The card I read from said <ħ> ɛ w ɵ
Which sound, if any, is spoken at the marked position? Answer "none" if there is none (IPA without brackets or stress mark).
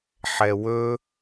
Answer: ħ